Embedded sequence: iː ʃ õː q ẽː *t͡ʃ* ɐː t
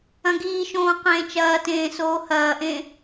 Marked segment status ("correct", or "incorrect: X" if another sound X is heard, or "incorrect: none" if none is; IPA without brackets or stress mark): correct